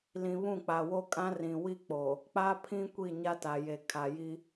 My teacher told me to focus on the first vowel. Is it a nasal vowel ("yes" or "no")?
yes